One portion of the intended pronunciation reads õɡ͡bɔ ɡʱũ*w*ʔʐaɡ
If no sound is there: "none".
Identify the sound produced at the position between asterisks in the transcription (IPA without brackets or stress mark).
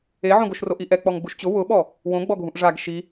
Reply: none